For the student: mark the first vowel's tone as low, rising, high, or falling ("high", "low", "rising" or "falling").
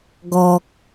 low